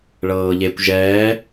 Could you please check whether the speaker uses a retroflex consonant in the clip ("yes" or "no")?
yes